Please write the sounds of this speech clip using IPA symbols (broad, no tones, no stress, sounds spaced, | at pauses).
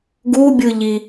ɡ u bʲ ɯ ʎ i